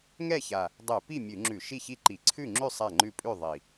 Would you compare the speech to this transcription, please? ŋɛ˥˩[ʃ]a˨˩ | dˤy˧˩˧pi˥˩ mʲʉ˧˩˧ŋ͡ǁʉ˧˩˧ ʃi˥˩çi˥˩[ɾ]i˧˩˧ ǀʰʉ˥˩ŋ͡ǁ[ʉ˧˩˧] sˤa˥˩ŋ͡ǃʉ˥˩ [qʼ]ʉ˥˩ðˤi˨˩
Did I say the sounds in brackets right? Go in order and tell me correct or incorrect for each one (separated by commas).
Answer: incorrect, incorrect, incorrect, incorrect